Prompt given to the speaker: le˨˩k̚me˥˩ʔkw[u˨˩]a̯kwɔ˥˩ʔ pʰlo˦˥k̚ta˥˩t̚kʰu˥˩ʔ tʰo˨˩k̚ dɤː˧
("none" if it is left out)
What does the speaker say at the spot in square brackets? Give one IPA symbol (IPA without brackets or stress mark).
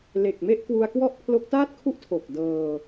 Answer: u˧